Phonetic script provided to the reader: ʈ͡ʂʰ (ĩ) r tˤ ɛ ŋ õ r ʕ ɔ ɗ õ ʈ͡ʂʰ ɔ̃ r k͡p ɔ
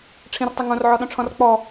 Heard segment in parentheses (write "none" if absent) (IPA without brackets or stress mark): ĩ